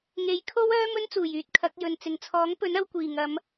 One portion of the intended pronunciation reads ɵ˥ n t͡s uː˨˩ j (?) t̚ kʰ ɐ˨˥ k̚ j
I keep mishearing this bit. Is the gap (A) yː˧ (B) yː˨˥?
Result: A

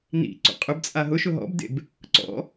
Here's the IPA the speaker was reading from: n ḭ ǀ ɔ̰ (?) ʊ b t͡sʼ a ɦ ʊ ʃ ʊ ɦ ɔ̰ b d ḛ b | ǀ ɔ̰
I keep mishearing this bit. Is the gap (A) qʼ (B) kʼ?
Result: A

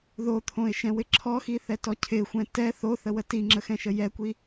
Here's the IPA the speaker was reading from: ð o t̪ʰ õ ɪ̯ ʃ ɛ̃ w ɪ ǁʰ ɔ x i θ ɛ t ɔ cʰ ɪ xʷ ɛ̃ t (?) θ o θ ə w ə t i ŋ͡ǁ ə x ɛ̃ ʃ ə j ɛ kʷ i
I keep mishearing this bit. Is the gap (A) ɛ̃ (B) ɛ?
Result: B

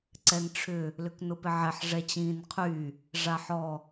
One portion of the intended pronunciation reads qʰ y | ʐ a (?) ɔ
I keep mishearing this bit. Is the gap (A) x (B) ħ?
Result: B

